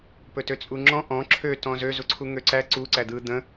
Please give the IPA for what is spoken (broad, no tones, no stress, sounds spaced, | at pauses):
p ɵ t ø t͡sʼ u ŋ͡ǁ ɔ̃ ʔ ɔ̃ ǁʰ ø t ɔ̃ z ø z u ǀʰ u ŋ ø ǀ æ ǀ u ǀ æ d̪ ɯ d̪ ə̃